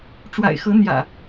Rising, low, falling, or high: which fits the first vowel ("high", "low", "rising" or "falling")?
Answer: low